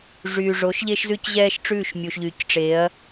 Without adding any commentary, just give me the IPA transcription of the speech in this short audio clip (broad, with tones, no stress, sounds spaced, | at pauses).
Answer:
ʐ yː˨ ʐ o˨˦ ʃ ʎ e˦ ʃ z ʉ˦ c ʑ ɛː˦ ʃ ʈ͡ʂ ʉ˦˨ ʃ mʲ u˨ ʃ ʎ yː˨ c ʈ͡ʂ e˨˦ ɐ̯